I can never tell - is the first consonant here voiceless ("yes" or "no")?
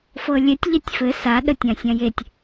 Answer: yes